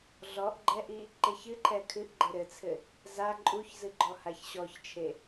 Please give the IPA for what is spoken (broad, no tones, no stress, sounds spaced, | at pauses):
ɮ ɔ ʔ ɡ͡ǃ ɛ ʔ i | ǃ e ç ɨ ǃʰ ɛ kʰ ɨ ʔ ɡ͡ǃ ɘ ɾ ɘ t͡sʰ ɘ | z a ǃʼ u ç z ɨ ɡ͡ǃ ɔ h a ç ɕ ɔ ç t͡ʃʰ e